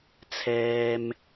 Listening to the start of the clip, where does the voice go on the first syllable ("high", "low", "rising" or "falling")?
low